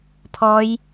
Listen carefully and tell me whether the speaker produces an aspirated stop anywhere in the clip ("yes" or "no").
yes